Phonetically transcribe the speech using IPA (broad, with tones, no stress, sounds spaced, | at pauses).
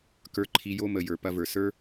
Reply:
k ə˞˧ ǃʰ i˧ j o˦ m ə˨ j ə˞˨ p ɐ˧ v ə˞˨ s ə˞˦